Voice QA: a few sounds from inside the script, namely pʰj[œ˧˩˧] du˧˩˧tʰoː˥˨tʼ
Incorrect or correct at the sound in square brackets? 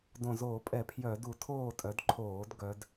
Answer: correct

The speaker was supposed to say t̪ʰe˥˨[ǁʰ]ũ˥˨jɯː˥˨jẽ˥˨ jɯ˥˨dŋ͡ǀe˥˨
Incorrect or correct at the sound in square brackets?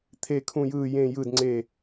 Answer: incorrect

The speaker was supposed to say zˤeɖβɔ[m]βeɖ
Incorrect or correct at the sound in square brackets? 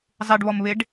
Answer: correct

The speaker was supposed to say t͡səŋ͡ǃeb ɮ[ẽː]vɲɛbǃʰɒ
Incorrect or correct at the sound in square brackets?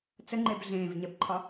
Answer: correct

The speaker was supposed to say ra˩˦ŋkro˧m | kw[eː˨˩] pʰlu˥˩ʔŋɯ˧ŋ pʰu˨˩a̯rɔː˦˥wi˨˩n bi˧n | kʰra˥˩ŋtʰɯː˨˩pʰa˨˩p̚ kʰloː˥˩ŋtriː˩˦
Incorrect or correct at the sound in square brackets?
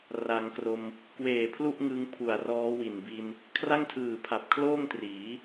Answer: correct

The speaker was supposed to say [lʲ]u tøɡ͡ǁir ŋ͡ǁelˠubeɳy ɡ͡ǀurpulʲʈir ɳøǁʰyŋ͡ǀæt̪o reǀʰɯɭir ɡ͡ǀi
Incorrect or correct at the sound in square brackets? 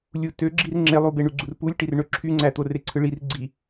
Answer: correct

